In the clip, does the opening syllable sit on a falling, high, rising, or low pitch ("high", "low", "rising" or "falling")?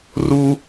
high